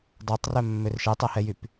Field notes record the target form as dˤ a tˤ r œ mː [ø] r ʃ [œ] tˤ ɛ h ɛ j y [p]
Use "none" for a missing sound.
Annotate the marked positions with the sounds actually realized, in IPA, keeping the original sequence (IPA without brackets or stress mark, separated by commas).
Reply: ø, ɛ, p